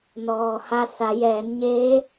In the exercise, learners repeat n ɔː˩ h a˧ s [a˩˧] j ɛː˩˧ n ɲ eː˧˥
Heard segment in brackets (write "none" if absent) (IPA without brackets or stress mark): a˩˧